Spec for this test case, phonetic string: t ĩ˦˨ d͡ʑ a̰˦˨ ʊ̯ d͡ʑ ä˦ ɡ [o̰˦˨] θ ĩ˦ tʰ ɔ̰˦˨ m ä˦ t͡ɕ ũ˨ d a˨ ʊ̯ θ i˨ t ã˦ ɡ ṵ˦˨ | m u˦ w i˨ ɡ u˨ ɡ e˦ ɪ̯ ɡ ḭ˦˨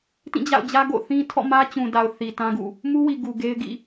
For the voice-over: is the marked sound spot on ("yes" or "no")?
yes